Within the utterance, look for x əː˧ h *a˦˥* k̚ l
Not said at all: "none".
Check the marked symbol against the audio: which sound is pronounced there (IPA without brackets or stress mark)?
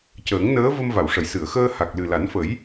a˨˩